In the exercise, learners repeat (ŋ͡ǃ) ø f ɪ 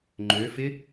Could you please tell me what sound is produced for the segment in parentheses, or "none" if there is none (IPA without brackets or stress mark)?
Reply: ŋ͡ǃ